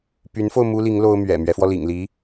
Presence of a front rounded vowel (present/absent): present